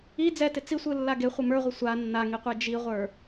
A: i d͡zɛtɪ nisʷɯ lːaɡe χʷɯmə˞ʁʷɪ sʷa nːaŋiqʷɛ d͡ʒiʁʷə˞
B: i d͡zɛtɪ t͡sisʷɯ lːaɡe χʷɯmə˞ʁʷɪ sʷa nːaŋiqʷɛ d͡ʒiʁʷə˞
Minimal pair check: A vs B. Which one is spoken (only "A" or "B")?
B